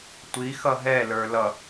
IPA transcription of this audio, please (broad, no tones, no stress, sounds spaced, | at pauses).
tʷ i x ʌ ɦ ɛ l ə˞ l ʌ